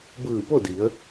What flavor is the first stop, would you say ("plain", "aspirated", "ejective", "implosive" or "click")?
plain